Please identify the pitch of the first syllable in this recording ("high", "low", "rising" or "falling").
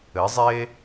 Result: rising